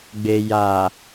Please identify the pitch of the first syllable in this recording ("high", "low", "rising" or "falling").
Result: low